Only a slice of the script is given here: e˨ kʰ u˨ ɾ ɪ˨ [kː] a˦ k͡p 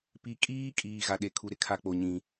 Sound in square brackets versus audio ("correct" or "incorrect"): incorrect